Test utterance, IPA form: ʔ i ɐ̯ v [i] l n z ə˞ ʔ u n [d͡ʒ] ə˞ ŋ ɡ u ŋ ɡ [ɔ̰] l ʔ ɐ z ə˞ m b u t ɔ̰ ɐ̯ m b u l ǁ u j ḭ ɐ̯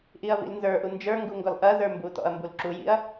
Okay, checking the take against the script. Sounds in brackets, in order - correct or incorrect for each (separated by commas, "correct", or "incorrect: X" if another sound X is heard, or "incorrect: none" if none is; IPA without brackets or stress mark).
incorrect: ḭ, correct, incorrect: ɔ